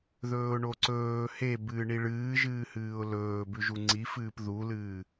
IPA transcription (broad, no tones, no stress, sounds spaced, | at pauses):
ð ɵː ʊ̯ ɳ o ǀ ɵː h e b ɨː ɳ i ɭ ɨː ʒ ɨː h ɨː ʊ̯ l ɵː b ʉ ʒ u ŋ͡ǀ i f ɨː p ð u l ɨː